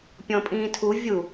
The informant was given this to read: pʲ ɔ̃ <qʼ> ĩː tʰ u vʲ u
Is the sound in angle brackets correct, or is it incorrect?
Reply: incorrect